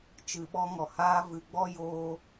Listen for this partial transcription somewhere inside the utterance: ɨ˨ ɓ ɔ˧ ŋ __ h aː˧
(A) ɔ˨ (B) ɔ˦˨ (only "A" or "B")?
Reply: A